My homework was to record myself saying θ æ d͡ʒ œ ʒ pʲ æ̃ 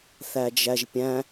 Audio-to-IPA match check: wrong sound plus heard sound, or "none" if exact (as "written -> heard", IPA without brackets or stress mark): œ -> æ